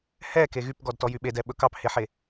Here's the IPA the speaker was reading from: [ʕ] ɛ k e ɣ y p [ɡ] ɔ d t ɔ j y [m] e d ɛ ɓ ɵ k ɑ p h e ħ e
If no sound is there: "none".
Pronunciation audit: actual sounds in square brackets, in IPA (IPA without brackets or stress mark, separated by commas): h, ɡ, ɓ